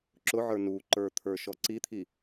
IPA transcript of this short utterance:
ǁʊʕə˞ nuǃə˞ t̪ʰə˞ʃɔǀit̪ʰi

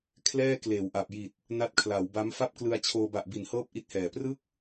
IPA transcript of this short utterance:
kʰlɛː˥˩kleː˩˦wʔa˨˩p̚ ji˨˩t̚ | na˦˥t̚kʰla˩˦wba˦˥m fa˥˩p̚klɯ˧a̯t͡ɕʰoː˧ ba˨˩ʔbi˩˦nhɤː˦˥p̚ ʔi˦˥t̚hɛː˨˩ prɯ˥˩k̚

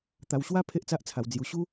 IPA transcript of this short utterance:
t̪a˧wɕwa˦ pʰe˦ʔt͡sa˦ʔt͡sʰa˧wd͡zju˧ ɕu˦

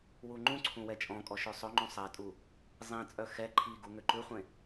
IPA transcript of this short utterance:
wuŋ͡ǃũǀʰũ wɛt͡ʃʼɔ̃kʼɔ ʃøsˤɵŋ͡ǃũ sˤɛtʼu | zˤĩt͡sʼœ xɛ ǃʰiɡu ŋøǃʉχʷẽ

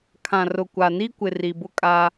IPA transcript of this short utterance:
kʰã˨rʊ˨ kʷa˨ni˦kʷɪ˨ ri˨bʊ˦kʼa˦

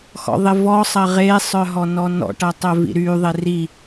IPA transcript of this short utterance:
xɔ̰ðˤɪvɔ sˤɐʁe sˤœɦɔnɔnɔ̰ ʈɐtˤœvḭɾy ðˤeri

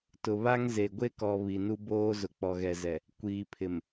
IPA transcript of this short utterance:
tʊ˨βa˦ŋ ze˨ ɡʷe˦kɔ˨ βi˨nu˦boː˦ zʊ˨ k͡pɔ˨ɣɛ˨zɛ˨ | kʷiː˨pʰɪ˨m

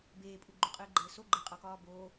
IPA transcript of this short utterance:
beːpʼu ɡ͡ǃuqʼɘːɡ͡ǃɘːso ɡ͡ǃɘqʼɒkɒː boː

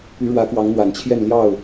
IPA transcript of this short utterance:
py˨˦ɻwä˨˦kwɑ˨˦ŋn̪wa˨˩n t͡ɕʰjɛ˥˨n ljɑ˥˨ʊ̯

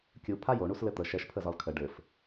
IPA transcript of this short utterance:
kʲu pʰajoɳus lɘt̪ə ʃɛʃ pʰəzɒlkʰə ɖɘf

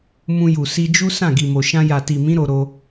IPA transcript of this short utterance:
mũ˧ju˨ si˧d͡ʒu˦ sã˦˨ɡi˨mo˨ ʃã˧ja˨ti˨mĩ˨˦ ɾo˧ɾo˧

